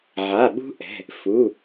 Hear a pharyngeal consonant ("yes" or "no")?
yes